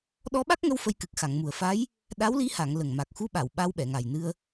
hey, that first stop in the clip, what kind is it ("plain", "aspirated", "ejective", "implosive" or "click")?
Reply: implosive